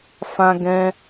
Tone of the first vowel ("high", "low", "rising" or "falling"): high